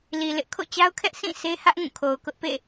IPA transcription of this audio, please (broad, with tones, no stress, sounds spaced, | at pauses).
l i˨ l ɪ˦ ʔ kʰ o̰˦˨ t͡ɕ a˦ ʊ̯ kʰ ɛ˦ ʔ sʰ ĩ˦˨ sʰ e˦ h ä˦ ʔ ŋ ũ˦˨ kʰ o˨ ʊ̯ k ʊ˦ ʔ p ḛ˦˨